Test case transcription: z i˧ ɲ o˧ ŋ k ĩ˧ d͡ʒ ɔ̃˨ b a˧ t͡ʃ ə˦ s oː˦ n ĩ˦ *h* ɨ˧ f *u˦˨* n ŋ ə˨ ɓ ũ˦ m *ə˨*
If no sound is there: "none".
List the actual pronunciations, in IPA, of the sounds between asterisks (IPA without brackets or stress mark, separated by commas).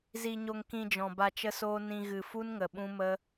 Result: ɣ, u˦, ə˦